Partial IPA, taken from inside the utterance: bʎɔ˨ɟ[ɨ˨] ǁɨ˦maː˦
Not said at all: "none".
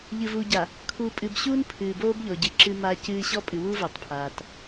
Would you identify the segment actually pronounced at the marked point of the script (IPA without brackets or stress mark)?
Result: ɨ˨